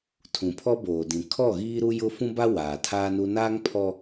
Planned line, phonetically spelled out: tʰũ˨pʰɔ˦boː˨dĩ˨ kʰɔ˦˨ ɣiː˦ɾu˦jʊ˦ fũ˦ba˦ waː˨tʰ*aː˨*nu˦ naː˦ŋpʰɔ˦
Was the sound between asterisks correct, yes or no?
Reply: no